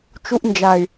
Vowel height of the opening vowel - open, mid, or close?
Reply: close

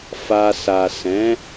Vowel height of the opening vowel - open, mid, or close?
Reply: open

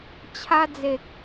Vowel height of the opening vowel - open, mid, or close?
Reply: open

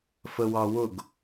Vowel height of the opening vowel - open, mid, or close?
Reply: mid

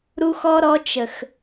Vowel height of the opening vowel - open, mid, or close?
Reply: close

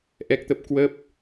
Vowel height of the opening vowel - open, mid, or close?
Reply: mid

